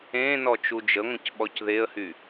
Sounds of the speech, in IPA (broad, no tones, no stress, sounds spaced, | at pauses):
ẽ n ɔ t͡ʃ u d͡ʒ ə ŋʷ ə̃ c ɓ ɔ c ð e ə̯ h y